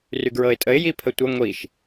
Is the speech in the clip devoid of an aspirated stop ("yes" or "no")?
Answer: no